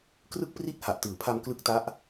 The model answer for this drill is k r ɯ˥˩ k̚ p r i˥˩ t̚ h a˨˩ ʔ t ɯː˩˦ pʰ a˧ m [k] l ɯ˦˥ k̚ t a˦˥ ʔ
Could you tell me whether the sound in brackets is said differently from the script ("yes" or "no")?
no